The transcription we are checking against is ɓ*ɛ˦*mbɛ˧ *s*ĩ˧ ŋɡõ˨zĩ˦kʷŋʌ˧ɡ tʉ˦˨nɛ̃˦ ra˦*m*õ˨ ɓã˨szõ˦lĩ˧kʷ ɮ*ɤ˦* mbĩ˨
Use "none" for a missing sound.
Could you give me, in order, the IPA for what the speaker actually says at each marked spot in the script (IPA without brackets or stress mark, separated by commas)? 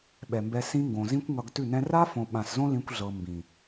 ɛ˨, s, f, ɤ˨